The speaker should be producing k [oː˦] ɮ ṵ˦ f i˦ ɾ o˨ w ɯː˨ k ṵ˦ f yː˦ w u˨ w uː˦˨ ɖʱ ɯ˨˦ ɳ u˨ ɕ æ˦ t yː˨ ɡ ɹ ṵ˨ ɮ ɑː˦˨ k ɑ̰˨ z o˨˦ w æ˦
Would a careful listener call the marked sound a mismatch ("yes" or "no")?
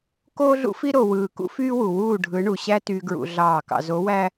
no